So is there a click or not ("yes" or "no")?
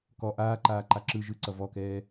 yes